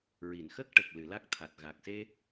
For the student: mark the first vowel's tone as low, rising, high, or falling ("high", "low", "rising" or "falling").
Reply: low